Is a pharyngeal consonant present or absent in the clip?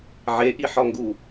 present